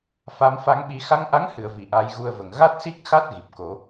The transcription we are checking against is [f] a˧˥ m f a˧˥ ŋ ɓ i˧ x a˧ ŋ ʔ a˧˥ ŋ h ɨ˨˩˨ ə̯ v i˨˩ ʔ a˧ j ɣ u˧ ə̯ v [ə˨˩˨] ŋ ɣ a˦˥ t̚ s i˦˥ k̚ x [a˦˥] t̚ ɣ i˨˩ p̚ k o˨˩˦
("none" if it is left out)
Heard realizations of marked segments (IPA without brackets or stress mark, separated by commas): f, ə˨˩, a˦˥